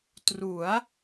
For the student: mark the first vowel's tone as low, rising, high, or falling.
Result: rising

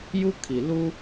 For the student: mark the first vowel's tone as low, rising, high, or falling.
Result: high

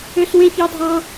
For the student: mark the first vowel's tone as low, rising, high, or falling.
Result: high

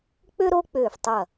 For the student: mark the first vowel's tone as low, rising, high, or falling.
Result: high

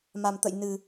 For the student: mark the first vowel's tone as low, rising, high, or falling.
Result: low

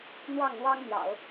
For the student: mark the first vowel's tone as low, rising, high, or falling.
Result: falling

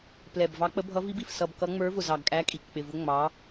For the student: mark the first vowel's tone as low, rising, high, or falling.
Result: low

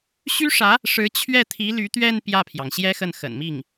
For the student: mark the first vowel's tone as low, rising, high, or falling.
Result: high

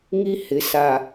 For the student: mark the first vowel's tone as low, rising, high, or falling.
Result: high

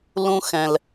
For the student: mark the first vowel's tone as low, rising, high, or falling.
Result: high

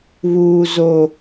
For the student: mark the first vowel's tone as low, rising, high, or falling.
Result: high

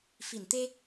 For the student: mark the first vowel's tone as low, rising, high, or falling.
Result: low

